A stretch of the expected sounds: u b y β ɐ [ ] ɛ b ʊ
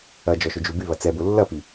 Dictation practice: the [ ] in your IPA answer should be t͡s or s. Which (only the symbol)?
t͡s